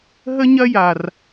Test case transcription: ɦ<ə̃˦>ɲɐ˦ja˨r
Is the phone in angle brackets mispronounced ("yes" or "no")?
yes